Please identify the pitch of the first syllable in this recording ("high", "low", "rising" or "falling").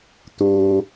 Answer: low